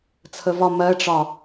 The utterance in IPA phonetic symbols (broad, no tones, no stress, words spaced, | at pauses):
t͡sʰəvɒ mɜʈ͡ʂɒ